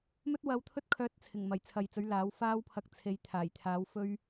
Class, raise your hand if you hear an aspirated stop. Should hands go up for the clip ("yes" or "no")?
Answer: yes